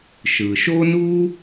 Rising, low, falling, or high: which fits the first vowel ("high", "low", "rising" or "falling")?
low